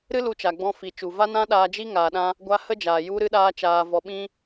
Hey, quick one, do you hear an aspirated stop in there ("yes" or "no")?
no